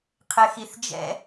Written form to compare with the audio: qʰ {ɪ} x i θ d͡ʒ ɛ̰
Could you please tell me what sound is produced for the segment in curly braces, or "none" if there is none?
ɪ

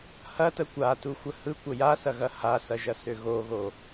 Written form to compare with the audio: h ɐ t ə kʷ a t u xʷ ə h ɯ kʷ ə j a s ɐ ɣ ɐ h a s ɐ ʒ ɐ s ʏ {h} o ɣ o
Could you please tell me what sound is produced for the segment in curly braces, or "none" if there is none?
ɣ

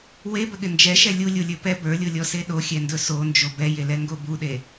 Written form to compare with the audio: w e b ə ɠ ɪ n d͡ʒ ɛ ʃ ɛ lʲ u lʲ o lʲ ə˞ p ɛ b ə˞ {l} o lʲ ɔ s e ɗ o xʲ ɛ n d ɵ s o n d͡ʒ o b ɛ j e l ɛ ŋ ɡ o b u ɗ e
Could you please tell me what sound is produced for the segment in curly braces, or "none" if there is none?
lʲ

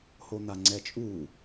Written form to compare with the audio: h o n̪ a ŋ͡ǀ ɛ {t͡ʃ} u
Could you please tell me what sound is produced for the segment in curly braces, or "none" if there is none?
t͡ʃʼ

